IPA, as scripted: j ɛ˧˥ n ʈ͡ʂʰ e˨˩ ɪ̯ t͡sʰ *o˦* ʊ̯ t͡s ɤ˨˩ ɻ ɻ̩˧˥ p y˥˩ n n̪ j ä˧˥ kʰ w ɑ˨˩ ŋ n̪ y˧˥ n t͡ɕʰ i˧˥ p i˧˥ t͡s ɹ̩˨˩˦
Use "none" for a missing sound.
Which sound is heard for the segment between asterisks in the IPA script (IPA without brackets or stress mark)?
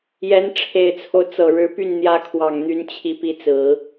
o˦